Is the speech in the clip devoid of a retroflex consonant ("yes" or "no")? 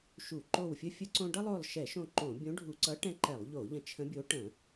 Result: no